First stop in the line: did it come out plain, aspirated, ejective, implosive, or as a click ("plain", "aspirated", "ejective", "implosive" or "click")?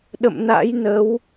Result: implosive